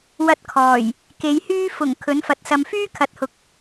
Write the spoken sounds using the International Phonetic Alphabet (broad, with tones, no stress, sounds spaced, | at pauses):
w ɐ˧ t̚ kʰ ɔː˨˩ j | k e˨˧ j h yː˥ f ʊ˨˩ ŋ kʰ ɵ˨˥ n f ɐ˨˥ t̚ s ɐ˧ m f yː˥ kʰ ɐ˨˥ t̚ h ʊ˨˥ k̚